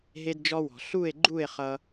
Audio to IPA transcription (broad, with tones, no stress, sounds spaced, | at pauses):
ɦ e˦ d d͡ʒ ɔ˦ w ɔ̤˨ ɬ u˦˨ e̯ ɡ͡ǃ u˦˨ e̯ χ ʌ˦